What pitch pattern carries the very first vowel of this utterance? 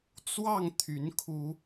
falling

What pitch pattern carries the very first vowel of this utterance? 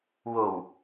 low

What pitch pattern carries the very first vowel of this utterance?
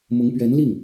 rising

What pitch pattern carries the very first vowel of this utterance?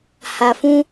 low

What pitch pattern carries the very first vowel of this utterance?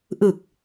low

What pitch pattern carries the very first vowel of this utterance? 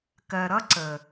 low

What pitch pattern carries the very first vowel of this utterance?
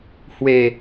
low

